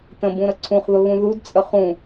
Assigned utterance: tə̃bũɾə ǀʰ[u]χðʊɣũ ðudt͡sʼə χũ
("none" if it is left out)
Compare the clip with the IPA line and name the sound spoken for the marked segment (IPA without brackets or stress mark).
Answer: ũ